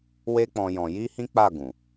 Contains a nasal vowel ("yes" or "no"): yes